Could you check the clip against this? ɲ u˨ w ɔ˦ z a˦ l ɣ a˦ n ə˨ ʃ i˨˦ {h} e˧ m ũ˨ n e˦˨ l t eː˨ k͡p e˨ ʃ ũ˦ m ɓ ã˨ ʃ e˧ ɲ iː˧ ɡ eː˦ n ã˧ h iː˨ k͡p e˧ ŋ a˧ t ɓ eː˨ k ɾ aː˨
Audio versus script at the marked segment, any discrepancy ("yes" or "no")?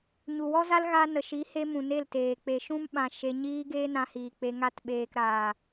no